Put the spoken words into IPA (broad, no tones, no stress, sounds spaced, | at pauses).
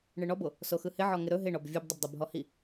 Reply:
ɳ ɯ ɳ ɔ b o | s o x ɯ h ɪ ʕ ɔ ŋ ɪ ɾ ɵ ɦ ɪ ɳ ɔ b vʲ ɯ b dˤ ɪ b dˤ o b ɦ ɔ h i